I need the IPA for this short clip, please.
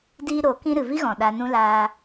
d iː˦ ɾ o˨˦ k ĩ˦ ɾ ɨ˨ v i˦ ɣ ɔ̃˨ ɗ a˧ n ũ˦ l aː˧

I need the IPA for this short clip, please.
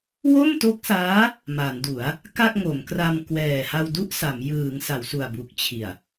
w o˥˩ m t o˦˥ k̚ s aː˦˥ | m a˩˦ n d u˩˦ a̯ | k a˥˩ k̚ ŋ o˩˦ m k r a˧ m k w ɛː˨˩ h a˧ w d u˥˩ ʔ s a˩˦ m j ɯː˩˦ ŋ s a˩˦ w s u˨˩ a̯ b u˨˩ k̚ t͡ɕʰ i˨˩ a̯

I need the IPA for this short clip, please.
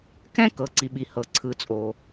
k ɛ̃˥ k ɤ˩ ǀ i˩ ɓ i˩ h ɤ˩ ǀʰ ɯ˩ t͡sʼ o˩

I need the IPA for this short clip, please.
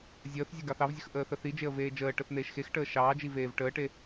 zʲ əː θ zʲ e ɡ ɑ θ ɑ v zʲ ə x ʔ əː θ ə θ i d͡ʒ e ə̯ v eː d͡ʒ əː ʈ ə θ n̪ eː ʃ x e x ʈ əː ʃ ɑː d͡ʒ i v eː v ʈ əː ʈ e

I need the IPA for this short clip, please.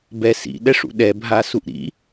b ɛ s ḭ ɗ ɛ ʂ ṵ ɗ ɛ bʱ a s u ʔ ɾ ḭ

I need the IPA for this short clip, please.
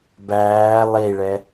b æː lˠ i ɭ ɛ

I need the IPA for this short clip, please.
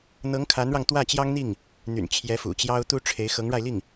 n̪ ɤ˧˥ ŋ kʰ a˧˥ n ɻ ɑ˧ ŋ t̪ w ä˥˩ t͡ɕ j ɑ˥ ŋ n̪ i˥˩ ŋ | n̪ y̰˨˩ n t͡ɕʰ j ɛ˧˥ f ṵ˨˩ t͡ɕ j ɑ˥ ʊ̯ t̪ u˥ ʈ͡ʂʰ e˧˥ ɪ̯ x ɤ˧˥ ŋ ɻ a˧ ɪ̯ l i˥˩ ŋ

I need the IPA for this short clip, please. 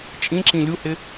t͡ʃʼ ĩ ǁ ĩ lʲ u h ɪ

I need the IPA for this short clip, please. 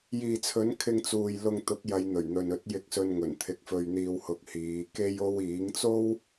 j iː˨ t͡sʰ ɵ˨˥ n kʰ ɪ˧ ŋ t͡s uː˨ j l ʊ˧ ŋ t̪ ʊ˨˥ k̚ j ɐ˨˧ j n̪ ɵ˨˩ ɥ n̪ ɵ˨ n ɵ˨˥ t̚ j ɪ˧ k̚ s ɵ˧ n ŋ ɵ˨˩ n t̪ʰ ɪ˨ k̚ f ɵ˨ ɥ n̪ iː˨ w h ʊ˨ k̚ h iː˨˧ k e˥ j o˥ w iː˨˥ ŋ t͡s o˥ w

